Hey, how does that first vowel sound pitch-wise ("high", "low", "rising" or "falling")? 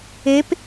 rising